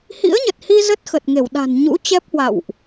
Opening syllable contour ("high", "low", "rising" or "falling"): rising